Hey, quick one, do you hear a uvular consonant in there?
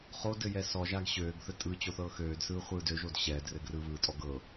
yes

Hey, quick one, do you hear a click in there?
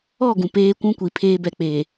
no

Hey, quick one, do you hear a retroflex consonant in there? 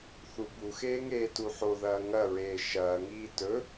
no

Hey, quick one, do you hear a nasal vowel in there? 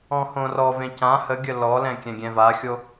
yes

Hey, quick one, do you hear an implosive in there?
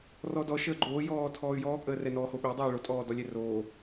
yes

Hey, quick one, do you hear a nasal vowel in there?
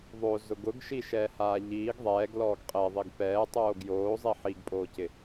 no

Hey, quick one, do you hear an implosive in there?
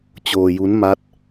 no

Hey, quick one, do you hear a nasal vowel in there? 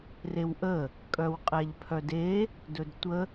no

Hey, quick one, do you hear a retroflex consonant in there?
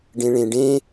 yes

